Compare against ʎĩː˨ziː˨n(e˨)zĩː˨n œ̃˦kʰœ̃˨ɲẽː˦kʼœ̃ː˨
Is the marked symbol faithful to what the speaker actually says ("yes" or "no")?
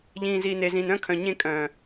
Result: yes